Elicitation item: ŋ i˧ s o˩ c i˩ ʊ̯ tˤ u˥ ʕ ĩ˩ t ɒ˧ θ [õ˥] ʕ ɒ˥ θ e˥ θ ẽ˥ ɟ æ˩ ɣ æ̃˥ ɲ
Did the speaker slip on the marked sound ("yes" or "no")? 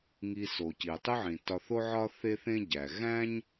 yes